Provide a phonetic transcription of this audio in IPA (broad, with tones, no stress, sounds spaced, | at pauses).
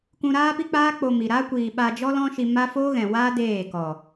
k ũ˧ ɾ aː˦ p i˦ k͡p aː˦ k͡p o˧ m i˨ ɾ a˦ kʷ iː˨ ɓ a˧ d͡ʒ ɔ˦ l ɔ̃˦ ʃ i˧ m a˦ f o˦ ɣ ɛ̃˨ w aː˦ d eː˦˨ k ɔ˨